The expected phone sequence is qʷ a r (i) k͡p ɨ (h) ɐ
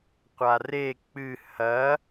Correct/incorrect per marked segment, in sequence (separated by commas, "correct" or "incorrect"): incorrect, correct